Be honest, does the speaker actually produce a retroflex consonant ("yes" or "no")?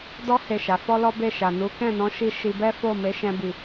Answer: no